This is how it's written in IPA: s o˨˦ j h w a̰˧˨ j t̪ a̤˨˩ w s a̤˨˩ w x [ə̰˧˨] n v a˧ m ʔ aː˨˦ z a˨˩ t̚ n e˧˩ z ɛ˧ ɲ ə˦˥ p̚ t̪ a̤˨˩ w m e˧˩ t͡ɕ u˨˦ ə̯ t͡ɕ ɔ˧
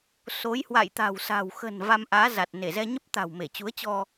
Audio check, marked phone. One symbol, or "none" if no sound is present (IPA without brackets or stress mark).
ə̤˨˩